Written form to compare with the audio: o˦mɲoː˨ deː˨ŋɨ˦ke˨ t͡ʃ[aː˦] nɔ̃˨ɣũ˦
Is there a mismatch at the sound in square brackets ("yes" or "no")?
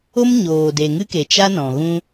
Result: yes